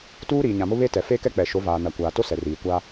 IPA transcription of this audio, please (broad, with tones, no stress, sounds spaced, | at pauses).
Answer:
t uː˦ ɾ iː˨ ɲ ã˨ m ʊ˦ β e˦ t ɛ˨ f e˦ k ɛ˦ k͡p ɛ˨ ʃ o˨˦ v aː˨ n a˨ kʷ aː˨ t o˦ s ɛ˨ r iː˨ kʷ a˦